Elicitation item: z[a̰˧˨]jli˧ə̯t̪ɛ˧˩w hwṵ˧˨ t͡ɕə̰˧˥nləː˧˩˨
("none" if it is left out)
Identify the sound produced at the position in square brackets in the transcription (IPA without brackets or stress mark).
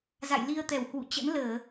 a̰˧˨